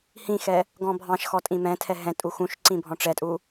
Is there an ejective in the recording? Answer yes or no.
yes